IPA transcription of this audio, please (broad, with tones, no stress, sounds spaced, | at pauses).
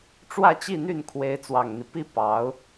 ʈ͡ʂ w ä˥˧ t͡ɕ i˥˧ n̪ y˥˩ n kʰ w e˧˥ ɪ̯ t͡s w ɑ˨˩ ŋ n̪ i˦ p i˥ p ɑ˧˥ ʊ̯